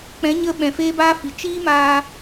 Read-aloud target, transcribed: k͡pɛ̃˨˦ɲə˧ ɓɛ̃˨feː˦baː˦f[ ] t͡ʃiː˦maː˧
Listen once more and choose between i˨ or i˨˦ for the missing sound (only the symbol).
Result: i˨